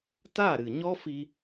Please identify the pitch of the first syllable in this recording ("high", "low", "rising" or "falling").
falling